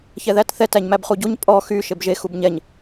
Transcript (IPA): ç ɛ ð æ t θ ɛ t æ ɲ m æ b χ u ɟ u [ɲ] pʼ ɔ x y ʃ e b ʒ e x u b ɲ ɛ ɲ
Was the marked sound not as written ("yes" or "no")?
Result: no